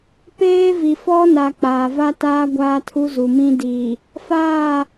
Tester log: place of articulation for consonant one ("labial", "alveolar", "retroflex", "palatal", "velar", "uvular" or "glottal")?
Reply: labial